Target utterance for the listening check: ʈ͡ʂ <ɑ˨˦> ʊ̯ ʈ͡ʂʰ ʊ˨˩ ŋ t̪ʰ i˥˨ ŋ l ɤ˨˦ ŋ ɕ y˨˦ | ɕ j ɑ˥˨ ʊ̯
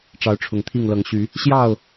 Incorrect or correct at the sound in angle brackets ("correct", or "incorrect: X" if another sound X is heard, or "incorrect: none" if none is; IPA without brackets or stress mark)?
correct